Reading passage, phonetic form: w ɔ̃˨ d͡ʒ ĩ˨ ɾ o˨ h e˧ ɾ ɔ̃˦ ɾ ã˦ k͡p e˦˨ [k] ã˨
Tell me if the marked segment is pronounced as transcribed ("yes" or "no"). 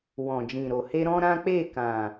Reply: yes